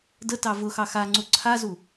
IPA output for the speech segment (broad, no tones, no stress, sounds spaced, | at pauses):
d ə t ɑ v ʊ x ɑ x a ŋ͡ǀ u ǀʰ a z u